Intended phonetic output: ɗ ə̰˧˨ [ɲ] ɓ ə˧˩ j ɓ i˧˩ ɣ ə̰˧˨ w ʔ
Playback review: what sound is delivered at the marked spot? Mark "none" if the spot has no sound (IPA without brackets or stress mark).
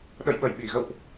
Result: j